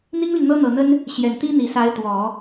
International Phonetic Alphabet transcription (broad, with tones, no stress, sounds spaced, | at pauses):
n̪ i˥ ŋ l y˨ n n̪ ɤ˥ n̪ ɤ˨˩ n̪ ə˥ n | ɕ j ɛ˨˩ n t̪ i˥ n̪ i˨˩ s a˧˥ ɪ̯ t̪ w ɔ˨˩˦